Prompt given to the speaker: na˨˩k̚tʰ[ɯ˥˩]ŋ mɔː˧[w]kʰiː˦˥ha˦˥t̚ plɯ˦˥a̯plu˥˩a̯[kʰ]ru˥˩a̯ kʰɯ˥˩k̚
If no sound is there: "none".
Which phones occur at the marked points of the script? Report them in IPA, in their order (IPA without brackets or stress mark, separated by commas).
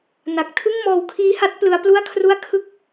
ɯ˥˩, w, kʰ